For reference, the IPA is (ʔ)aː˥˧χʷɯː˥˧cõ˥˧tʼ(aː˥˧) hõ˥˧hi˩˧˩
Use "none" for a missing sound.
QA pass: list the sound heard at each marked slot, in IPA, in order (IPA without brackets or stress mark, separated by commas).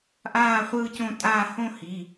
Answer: ʔ, aː˥˧